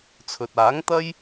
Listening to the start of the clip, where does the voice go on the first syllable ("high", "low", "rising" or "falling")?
low